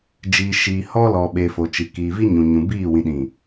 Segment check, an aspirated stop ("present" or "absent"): absent